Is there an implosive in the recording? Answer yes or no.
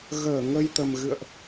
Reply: no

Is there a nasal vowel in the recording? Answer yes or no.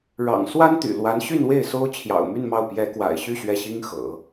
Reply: no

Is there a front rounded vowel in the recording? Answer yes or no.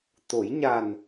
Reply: no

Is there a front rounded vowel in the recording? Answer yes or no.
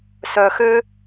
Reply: yes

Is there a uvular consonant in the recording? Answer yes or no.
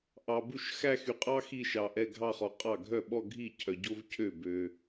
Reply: yes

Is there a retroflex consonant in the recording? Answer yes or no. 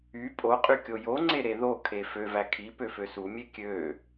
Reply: no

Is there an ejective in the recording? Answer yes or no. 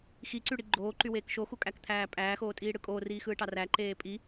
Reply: yes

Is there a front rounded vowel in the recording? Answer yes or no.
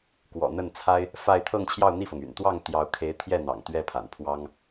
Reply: yes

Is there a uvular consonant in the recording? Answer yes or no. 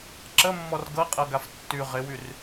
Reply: yes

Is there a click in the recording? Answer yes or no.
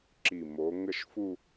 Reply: yes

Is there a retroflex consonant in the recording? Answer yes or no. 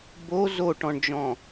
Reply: yes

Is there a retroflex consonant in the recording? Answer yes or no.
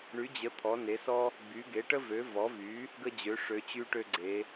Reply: yes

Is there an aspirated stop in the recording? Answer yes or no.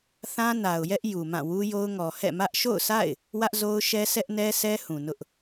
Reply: no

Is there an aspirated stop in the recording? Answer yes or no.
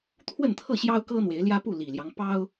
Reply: yes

